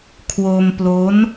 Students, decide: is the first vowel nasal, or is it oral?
oral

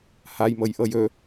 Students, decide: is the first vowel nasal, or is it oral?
oral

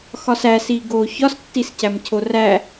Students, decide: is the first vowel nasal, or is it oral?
oral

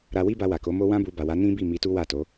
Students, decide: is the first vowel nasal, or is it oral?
oral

